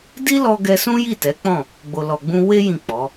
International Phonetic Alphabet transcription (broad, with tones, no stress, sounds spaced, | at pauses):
d i˦ l ɔ˧ ɡ ɛ˧ s ũ˦ j i˦˨ t ɛ˨˦ k͡p ɔ̃˦˨ | ɡ͡b o˨ l ɔ˨ ɡ͡b ũ˧ w e˦ j ĩ˦˨ k͡p ɔ˨˦